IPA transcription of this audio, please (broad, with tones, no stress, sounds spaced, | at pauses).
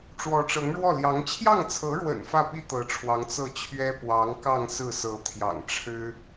ʈ͡ʂ w ɔ˧˥ ʈ͡ʂ ɤ˧˥ ŋ ɻ w ɔ˥˩ l j ɑ˧˥ ŋ t͡ɕʰ j ɑ˥˩ ŋ t͡sʰ ɤ˧˥ ɻ w ə̰˨˩ n f ä˥˩ p i˥ t̪ ɤ˧˥ ʈ͡ʂʰ w ɑ˧˥ ŋ t͡s ɤ˥˩ t͡ɕʰ ɥ ɛ˥ p w ɑ˧˥ ŋ k ɑ˥˧ ŋ s ɹ̩˥˩ s ɤ˧˥ t̪ʰ j ɑ̰˨˩ ŋ ʈ͡ʂʰ ɻ̩˥